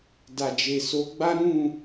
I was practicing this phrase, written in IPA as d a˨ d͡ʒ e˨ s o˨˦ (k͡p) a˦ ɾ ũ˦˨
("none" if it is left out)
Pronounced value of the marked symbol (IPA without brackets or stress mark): ɡ͡b